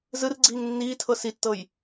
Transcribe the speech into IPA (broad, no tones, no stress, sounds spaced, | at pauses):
z ɯ r ɡ͡ǀ iː ŋ nː iː tʰ ɤ s i tː ɤ j